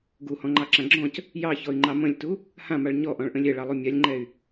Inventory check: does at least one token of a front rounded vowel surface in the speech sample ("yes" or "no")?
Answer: yes